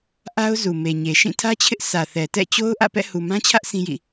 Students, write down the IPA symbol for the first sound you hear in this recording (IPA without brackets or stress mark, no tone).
ʔ